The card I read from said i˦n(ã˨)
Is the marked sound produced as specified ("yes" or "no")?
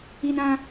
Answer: no